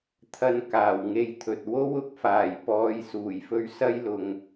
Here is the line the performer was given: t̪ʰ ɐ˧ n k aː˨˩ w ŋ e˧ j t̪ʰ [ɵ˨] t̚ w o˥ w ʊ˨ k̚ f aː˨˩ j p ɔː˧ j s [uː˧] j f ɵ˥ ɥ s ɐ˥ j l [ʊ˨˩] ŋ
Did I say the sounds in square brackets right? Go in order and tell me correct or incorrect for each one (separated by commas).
correct, incorrect, incorrect